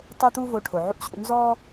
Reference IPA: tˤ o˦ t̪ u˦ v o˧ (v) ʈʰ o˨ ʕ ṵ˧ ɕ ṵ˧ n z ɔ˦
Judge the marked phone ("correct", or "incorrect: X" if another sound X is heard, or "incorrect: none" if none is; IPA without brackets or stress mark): incorrect: none